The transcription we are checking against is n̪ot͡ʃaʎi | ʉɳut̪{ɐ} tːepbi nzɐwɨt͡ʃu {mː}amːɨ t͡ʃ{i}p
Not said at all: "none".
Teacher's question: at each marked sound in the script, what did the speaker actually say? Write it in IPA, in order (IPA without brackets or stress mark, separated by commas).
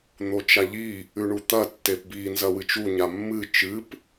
ɐ, ɲ, ɨ